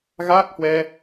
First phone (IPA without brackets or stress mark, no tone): ɣ